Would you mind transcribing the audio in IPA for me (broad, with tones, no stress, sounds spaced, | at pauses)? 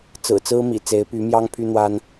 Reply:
t͡s ɹ̩˨˩ t͡s ɹ̩˥ m ḭ˨˩ t͡s e˧˥ ɪ̯ p y˧˥ m j ɑ˥ ŋ pʰ y˥ n̪ w a˥ n